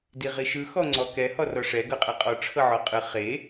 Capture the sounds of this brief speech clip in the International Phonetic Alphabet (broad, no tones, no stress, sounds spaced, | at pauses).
d i ʁ i ʃ ɯ x ɔ ŋ͡ǀ ɔ k ɛ h ɔ r ɔ ʂ ɛ ɡ ɤ qʼ ɛ qʼ ɔ ʈ͡ʂʰ ɤ ʕ ɔ qʼ ɯ χ e